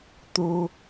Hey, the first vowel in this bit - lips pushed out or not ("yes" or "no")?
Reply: yes